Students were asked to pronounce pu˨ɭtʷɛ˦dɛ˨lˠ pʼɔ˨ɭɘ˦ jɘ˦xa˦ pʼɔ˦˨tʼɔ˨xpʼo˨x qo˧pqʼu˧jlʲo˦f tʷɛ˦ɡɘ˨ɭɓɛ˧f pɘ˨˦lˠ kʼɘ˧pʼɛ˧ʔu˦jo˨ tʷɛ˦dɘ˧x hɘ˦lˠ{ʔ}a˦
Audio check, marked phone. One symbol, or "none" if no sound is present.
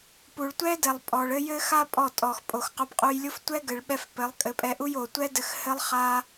χ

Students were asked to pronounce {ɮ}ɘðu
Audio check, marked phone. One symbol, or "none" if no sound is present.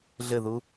ɮ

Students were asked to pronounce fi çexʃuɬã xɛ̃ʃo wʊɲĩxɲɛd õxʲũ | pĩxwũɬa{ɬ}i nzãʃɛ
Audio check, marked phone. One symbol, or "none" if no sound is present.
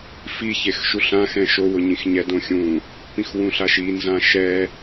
ʃ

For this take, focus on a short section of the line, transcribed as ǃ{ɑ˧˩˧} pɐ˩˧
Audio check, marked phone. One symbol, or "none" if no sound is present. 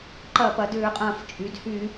ɐ˧˩˧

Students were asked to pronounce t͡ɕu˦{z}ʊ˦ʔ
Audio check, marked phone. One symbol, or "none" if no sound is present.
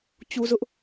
z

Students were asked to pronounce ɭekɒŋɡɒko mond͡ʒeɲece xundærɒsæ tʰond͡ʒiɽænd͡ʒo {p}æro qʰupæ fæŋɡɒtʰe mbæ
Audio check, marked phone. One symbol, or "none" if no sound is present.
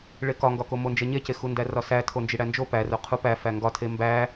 p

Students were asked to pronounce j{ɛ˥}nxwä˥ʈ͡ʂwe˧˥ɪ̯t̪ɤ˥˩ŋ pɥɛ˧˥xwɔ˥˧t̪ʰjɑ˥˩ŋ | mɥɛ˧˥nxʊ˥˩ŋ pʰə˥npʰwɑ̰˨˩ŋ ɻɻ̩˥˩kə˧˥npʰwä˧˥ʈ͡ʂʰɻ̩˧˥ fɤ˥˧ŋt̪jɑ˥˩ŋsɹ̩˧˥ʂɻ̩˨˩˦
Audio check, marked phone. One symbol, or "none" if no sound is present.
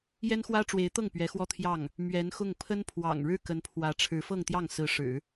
ɛ˥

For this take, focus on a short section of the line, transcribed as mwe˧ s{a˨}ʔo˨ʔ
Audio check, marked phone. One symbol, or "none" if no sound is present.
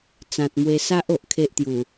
a˦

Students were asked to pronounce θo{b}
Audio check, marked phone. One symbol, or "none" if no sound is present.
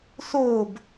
b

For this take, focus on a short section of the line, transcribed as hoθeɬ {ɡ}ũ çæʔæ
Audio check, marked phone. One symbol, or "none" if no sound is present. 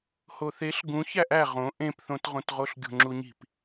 ɡ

